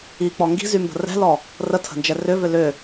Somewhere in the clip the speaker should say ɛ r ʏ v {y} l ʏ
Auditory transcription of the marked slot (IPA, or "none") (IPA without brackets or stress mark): ʏ